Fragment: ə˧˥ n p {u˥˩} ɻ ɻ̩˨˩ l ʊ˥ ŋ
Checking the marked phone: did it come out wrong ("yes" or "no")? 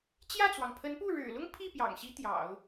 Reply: no